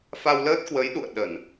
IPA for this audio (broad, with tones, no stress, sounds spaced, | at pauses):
f a˧ w l əː˦˥ t̚ k w ə˨˦ j ɗ ṵ˧˨ ə̯ ɗ ə˧˩˨ n